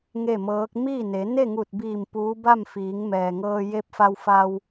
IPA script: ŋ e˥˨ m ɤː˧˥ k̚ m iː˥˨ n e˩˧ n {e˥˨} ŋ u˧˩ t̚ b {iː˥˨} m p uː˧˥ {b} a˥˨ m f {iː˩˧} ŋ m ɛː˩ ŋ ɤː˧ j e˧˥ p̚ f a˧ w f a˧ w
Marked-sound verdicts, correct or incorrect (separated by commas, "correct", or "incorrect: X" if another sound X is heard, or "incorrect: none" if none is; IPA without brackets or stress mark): correct, incorrect: iː˧˩, correct, correct